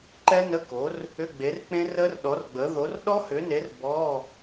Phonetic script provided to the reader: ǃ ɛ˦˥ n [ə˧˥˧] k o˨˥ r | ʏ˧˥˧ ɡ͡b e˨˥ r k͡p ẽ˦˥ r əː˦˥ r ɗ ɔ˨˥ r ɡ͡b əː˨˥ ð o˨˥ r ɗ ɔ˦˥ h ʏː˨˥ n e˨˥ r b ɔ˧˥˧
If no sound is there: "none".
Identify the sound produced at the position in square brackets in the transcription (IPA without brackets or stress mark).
ə˧˥˧